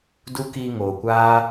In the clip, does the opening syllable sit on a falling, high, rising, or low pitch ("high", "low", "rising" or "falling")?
high